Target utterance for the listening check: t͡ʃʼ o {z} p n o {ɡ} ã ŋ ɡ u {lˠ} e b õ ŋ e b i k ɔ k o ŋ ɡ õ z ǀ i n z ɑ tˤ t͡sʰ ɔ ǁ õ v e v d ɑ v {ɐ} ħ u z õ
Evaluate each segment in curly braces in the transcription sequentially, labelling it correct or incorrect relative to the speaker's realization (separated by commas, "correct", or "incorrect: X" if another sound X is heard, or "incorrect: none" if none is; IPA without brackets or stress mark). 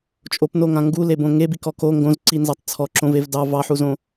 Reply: incorrect: none, incorrect: ŋ, incorrect: l, incorrect: ɑ